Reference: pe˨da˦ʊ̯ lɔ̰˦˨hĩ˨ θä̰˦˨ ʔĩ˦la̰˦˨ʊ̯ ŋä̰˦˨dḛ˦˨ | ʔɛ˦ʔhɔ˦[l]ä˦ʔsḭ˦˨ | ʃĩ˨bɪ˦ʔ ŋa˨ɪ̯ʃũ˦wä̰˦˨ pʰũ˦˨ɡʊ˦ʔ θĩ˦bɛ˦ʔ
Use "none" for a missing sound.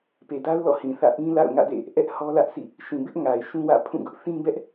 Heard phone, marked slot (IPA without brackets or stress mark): l